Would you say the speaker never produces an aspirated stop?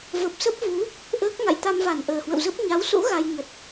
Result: yes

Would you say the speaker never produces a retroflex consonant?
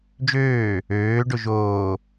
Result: no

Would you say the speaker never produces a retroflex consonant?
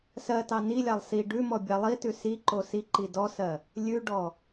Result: no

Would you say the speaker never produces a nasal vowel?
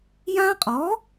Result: no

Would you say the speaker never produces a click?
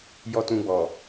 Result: yes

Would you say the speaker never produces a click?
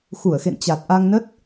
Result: yes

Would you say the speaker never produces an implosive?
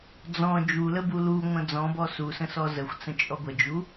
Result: yes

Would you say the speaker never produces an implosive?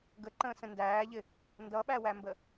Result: no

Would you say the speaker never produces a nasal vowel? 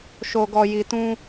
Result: no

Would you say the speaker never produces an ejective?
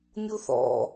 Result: yes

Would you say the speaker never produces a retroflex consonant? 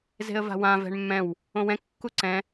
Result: no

